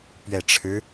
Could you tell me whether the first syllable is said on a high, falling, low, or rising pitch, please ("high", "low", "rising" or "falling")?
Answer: low